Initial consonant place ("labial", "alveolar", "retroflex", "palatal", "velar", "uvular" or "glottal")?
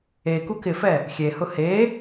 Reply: velar